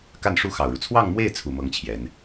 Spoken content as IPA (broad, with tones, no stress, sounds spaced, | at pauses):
k a˥˩ n ʂ u˥ x ɑ˨˩ ʊ̯ ɻ u˦ t͡sʰ w ɑ˥˧ ŋ m w e˥˩ ɪ̯ t͡sʰ u˨˩ m ɤ˥ ŋ t͡ɕʰ j ɛ˧˥ n